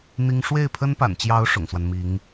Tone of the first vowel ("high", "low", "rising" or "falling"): high